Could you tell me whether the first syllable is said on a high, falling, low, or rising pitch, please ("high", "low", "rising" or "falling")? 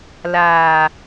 low